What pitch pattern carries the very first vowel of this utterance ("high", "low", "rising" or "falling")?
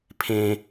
low